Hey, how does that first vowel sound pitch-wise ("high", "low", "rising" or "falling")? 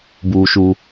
low